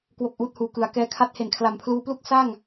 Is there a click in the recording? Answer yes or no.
no